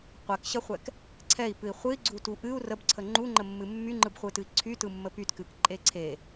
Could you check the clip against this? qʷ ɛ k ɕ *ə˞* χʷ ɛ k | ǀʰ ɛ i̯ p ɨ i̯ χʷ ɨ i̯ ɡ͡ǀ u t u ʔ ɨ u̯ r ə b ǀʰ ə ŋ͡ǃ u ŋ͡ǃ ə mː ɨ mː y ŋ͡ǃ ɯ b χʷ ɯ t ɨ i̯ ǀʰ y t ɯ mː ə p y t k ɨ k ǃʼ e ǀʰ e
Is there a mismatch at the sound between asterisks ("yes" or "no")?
yes